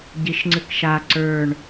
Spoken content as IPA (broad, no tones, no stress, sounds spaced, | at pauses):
ɟ i ʃ ŋ͡ǀ ɨ k ʃ a ǀ ə˞ ɳ